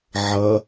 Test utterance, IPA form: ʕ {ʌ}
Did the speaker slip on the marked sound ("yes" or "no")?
no